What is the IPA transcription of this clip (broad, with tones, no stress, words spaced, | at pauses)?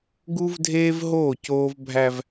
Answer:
ɡu˦vdʱeː˦v ɦoː˦˨coː˦v bʱæ˦v